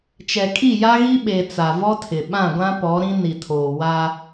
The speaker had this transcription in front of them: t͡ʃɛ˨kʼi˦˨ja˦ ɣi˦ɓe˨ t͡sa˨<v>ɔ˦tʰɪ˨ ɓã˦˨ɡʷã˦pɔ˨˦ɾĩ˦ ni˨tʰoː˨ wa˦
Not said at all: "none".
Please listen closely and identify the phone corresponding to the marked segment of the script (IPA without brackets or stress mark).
v